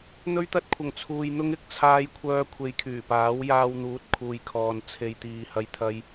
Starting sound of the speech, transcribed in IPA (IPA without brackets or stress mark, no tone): n̪